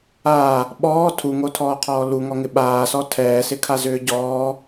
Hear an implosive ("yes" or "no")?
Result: yes